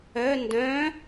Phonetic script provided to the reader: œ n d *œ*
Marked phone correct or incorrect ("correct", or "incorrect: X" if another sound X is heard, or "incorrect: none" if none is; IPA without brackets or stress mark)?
incorrect: œ̃